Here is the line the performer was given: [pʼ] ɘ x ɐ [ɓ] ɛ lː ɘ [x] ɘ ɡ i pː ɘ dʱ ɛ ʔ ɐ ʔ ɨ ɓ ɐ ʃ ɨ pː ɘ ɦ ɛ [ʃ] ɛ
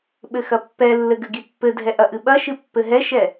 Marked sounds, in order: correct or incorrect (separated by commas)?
incorrect, incorrect, incorrect, correct